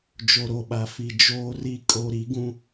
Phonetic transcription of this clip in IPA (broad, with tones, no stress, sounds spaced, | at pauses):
d͡ʒ o˨ ɾ o˨ ɓ a˨ f i˨ d͡ʒ oː˨ r i˨ kʼ o˨ ɾ i˨˦ ɡ ũ˦